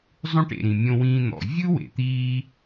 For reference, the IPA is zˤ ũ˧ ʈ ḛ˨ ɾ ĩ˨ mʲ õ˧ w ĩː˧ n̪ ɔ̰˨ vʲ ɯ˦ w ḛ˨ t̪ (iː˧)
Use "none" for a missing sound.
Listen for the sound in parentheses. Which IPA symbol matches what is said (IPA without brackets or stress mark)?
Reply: iː˧